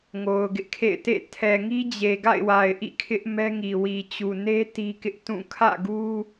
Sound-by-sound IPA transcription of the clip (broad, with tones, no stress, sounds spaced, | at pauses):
ŋ o˨ ʊ̯ ɡ ɪ˦ ʔ kʰ ḛ˦˨ ɪ̯ t ḛ˦˨ tʰ ɛ˨ ŋ i˦ d͡ʑ e˨ ɡ a̰˦˨ ɪ̯ w a˨ ɪ̯ ʔ ḭ˦˨ kʰ ɪ˦ ʔ m ɛ˦ ŋ i˨ w i˨ t͡ɕ u˨ n e˦ t i˦ k ɪ˦ ʔ t ũ˦˨ kʰ ä̰˦˨ ɡ u˦